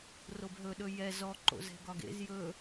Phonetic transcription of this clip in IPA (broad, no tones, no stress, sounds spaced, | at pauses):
r o b ɦ ɵ ɗ ɵ j ɛ z ɔ ǃ o̰ z ɛ̤ ɡ ɒ ɡ ḛ z j ɵ